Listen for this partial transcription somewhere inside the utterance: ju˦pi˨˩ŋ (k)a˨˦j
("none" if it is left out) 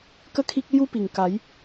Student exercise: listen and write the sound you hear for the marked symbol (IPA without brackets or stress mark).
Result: k